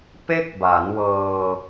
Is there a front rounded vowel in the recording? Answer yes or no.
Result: no